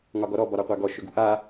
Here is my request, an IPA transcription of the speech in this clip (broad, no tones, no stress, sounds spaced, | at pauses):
ŋ ɒ ɡ ɔ ɾ ɔ b ɒ ɾ a qʷ a ɡ ɔ ʃ ʏ ɡ ṳ ʔ a